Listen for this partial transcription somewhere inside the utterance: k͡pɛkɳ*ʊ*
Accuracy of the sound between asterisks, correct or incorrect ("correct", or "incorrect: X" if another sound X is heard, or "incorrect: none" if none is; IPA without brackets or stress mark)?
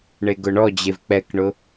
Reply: correct